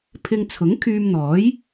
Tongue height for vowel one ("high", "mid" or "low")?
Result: high